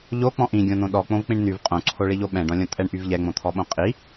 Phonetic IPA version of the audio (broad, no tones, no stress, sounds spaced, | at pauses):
ʎ o k͡p ɔ̃ ʔ ĩ ɡʲ õ n̪ õ ɗ ɔ k͡p õ v k͡p ĩ ɳ n̪ y v qʼ õ ǀʰ o ɭ i ʎ o ɓ ɛ̃ ɖ ɔ̃ lʲ õ tʼ ɛ ɳ ʔ y v ʎ ɛ ŋ͡m õ t̪ʰ ɔ ɓ õ qʼ i